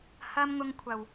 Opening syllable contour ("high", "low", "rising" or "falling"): high